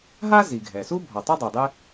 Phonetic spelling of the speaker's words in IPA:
ɦ a˥ z i˩ ɡʱ ɛ˩ s u˥ bʱ ɔ˩ tˤ u˥ dˤ o˩ dˤ ɪ˥

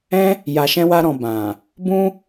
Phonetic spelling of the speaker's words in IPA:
ɛ̃˦ | j a˧ ʃ ɛ̃˦ w a˦ ɾ ɔ̃˧ b ã˨ | b ũ˦

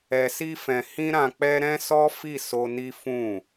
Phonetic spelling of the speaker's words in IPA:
ɛ˧ s i˦ f ɛ̃˧ h ĩ˦ ɾ ã˧ k͡p ɛ˦ ɾ ɛ̃˦ s ɔ˦ f i˦˨ s o˧ n i˦ f ũ˦˨

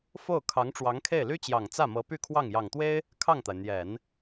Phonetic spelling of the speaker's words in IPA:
f o˥˩ ʊ̯ kʰ ɑ˧˥ ŋ ʈ͡ʂ w ɑ˧˥ ŋ kʰ e˥˩ ɪ̯ l y˥ t͡ɕ j ɑ˨˩ ŋ t͡s ä˥˩ m ɤ˧˥ p y˥˧ kʰ w ɑ˥˩ ŋ j ɑ˨˩ ŋ t̪ w e˥ ɪ̯ | kʰ ɑ˥˩ ŋ t̪ a˩ ɪ̯ n̪ j ɛ˨˩˦ n

